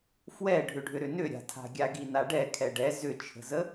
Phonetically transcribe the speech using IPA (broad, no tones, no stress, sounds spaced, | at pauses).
f w ɛ ɖʱ ʏ ɖʱ ʏ ɾ ʏ n ʏ ɾʲ a̤ tʰ a̤ ɡʲ a ɡ i n a ɖ ɛ kʰ ɛ ɖ ɛ z ʏ t͡ʃʰ ə̤ z ə